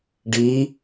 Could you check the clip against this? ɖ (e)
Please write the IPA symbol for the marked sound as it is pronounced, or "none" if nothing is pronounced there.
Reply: i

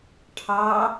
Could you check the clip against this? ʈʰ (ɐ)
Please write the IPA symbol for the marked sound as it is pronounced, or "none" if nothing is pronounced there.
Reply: ɑ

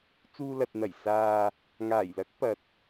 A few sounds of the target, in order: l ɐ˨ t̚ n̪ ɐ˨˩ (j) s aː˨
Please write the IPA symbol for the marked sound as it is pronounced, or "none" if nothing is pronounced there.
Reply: j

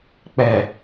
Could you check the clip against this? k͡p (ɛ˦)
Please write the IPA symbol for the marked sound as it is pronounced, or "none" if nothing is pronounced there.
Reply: ɛ˨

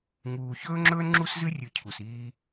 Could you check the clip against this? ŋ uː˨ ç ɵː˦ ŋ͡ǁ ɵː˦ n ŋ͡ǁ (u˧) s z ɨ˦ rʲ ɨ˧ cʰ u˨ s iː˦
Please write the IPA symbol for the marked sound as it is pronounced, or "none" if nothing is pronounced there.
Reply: u˦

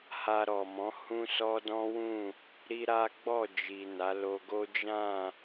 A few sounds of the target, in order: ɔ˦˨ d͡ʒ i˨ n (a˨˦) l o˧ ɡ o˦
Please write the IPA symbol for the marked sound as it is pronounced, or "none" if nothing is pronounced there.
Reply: a˨˦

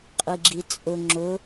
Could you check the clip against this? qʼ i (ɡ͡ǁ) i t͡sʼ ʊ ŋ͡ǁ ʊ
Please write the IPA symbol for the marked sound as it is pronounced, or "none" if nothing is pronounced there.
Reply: ɡ͡ǁ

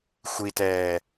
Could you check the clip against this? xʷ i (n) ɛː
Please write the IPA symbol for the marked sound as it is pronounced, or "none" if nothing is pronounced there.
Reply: t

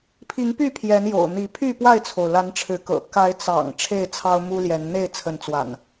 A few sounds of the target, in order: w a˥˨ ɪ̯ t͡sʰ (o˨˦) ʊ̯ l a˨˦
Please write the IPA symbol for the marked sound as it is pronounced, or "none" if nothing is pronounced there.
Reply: o˩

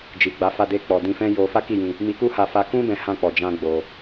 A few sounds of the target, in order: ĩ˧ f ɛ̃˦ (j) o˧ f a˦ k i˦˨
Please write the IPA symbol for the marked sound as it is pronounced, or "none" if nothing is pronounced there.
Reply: j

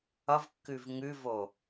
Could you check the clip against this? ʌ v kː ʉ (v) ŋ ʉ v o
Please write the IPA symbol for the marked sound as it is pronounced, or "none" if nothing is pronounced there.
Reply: v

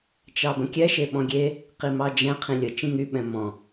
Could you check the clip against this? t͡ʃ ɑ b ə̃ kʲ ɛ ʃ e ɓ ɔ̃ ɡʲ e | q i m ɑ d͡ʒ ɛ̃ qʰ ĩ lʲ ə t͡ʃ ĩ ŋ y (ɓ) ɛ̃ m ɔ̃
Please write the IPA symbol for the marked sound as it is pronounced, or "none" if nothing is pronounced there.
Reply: ɓ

